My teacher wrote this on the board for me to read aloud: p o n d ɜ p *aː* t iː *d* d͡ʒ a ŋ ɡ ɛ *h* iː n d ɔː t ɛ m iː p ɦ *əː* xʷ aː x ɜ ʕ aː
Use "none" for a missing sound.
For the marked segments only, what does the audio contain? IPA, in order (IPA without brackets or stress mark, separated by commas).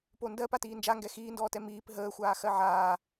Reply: a, n, x, əː